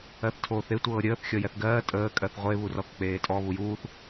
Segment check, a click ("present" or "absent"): absent